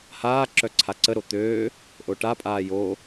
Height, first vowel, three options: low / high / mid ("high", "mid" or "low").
low